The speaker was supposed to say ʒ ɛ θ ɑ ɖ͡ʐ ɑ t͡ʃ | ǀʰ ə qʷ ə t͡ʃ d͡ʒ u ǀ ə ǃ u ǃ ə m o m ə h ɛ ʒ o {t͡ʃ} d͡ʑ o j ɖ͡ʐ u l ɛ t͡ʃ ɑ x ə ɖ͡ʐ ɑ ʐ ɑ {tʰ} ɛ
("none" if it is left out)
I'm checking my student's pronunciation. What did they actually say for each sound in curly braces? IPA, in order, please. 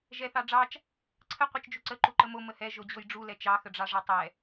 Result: none, tˤ

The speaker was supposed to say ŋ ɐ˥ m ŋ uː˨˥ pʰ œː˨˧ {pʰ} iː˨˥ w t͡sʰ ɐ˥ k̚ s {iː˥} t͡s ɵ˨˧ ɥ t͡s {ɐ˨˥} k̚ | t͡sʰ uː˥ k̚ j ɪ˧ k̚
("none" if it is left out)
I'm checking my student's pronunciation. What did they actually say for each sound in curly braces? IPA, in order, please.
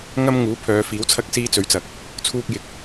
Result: f, iː˥, ɐ˨

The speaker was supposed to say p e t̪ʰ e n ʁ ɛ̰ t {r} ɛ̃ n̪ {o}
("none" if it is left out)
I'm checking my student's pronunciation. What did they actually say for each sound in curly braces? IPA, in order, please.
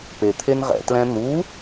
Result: l, u

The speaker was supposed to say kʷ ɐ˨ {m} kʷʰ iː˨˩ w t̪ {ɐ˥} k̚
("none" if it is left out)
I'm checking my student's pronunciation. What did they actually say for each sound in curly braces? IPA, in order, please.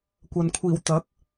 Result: n, ɐ˨˥

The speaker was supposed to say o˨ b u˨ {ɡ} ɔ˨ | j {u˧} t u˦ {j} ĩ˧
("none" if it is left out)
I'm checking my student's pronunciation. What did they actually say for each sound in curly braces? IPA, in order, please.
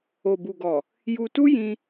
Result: ɡ, u˧, j

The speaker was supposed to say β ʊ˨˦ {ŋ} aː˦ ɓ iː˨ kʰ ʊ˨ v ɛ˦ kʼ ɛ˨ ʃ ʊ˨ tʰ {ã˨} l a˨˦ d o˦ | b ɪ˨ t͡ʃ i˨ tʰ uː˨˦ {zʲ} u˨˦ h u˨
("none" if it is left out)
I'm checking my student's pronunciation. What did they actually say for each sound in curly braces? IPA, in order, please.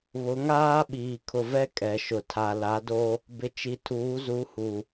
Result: ŋ, a˨, z

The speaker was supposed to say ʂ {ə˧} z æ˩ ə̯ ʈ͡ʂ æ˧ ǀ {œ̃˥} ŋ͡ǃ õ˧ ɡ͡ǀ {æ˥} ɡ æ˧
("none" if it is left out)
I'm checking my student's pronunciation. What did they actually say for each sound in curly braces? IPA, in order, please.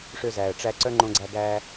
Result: ø˧, œ˥, æ˧

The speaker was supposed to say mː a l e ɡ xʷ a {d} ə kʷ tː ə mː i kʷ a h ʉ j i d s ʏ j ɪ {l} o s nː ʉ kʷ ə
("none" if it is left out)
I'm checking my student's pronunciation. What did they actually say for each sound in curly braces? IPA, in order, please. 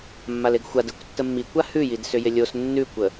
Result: d, lʲ

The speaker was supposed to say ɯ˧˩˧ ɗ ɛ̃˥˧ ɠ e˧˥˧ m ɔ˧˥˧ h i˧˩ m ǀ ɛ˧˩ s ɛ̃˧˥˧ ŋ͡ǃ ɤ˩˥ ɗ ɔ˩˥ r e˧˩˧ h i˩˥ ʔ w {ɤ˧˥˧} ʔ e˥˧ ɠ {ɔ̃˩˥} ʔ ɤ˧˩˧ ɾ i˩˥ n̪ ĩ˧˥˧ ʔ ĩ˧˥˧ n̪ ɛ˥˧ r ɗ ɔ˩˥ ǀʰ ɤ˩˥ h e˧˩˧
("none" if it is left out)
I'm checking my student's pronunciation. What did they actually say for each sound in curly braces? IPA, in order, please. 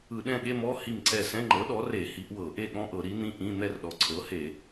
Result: ɤ˧˩˧, ɔ̃˧˥˧

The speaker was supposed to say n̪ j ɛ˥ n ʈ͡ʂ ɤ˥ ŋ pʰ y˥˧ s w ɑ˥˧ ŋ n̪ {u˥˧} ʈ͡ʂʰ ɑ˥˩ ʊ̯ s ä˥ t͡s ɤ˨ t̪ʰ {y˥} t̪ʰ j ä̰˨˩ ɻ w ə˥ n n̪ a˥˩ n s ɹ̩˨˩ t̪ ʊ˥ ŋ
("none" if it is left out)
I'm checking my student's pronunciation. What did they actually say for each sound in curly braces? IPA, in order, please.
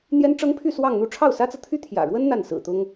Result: u˥˧, y˥

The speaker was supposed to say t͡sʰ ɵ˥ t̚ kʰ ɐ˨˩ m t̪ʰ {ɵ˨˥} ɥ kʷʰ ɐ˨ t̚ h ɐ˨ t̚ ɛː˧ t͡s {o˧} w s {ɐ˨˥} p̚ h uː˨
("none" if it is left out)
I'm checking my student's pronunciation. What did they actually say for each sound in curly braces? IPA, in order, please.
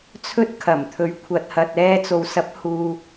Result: ɵ˨˥, o˨, ɐ˨˥

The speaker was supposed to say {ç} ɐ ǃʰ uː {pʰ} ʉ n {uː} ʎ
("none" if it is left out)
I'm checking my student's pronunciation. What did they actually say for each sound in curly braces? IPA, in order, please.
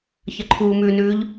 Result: ç, m, ʉː

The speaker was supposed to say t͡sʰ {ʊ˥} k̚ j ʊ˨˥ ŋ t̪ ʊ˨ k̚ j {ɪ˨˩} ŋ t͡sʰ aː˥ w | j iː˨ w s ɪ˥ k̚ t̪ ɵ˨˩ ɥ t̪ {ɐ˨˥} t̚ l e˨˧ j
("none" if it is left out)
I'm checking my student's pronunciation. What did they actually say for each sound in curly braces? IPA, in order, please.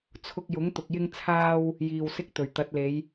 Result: ʊ˧, ɪ˥, ɐ˨˥

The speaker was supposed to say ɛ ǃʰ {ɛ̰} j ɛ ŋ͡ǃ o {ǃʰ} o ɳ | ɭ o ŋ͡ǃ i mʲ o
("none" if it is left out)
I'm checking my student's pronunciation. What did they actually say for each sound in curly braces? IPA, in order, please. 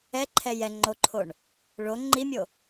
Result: ɛ, ǃʰ

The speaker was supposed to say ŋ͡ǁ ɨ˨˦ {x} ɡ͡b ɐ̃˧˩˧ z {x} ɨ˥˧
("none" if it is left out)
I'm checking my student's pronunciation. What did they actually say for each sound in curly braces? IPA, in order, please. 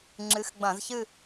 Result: x, ç

